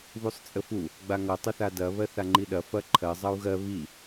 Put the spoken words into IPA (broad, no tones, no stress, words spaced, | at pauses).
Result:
βusˤt͡sʼəfu | ɡ͡baŋʌ tˤəθadɐ βɜθaŋ͡ǃiɗɐ fɐǃʰɜ zˤʌu̯ɣɜ βi